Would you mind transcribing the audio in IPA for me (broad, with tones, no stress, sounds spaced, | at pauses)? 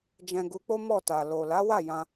d͡ʒ ɛ̃˧ ɡ u˧ k͡p o˦ m ɔ˦˨ t a˨ l o˨ l a˨˦ w a˦˨ j ã˧